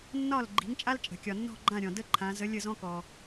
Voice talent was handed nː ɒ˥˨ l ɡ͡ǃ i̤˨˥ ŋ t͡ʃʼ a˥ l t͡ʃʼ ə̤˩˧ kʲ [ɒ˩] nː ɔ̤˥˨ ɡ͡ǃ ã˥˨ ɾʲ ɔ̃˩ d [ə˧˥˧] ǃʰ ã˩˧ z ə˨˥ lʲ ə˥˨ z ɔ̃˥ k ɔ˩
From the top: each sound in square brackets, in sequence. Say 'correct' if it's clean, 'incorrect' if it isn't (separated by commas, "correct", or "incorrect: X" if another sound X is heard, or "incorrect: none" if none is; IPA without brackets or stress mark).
correct, incorrect: ə˥˨